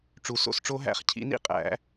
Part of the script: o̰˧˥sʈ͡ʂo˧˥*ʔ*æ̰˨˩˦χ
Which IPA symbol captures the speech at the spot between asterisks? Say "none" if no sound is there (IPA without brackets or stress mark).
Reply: ɦ